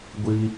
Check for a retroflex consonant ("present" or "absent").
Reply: absent